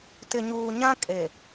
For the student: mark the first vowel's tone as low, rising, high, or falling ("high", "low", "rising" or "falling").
low